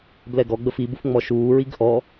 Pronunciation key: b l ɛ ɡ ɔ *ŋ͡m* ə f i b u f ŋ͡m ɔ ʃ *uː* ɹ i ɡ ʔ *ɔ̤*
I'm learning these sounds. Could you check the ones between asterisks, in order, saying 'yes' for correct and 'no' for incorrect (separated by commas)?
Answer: no, yes, no